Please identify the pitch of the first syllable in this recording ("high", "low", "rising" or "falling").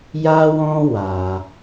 high